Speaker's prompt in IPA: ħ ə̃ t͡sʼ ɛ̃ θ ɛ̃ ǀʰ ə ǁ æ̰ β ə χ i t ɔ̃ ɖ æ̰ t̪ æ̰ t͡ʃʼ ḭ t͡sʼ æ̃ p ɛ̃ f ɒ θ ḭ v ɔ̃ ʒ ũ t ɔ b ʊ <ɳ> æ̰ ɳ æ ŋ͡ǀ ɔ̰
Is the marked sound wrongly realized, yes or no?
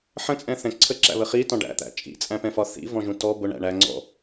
no